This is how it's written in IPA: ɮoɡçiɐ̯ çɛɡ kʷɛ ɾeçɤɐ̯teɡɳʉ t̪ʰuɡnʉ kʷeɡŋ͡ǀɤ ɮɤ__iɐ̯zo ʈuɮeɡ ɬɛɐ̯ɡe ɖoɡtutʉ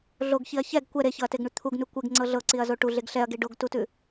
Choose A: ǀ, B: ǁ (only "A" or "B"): A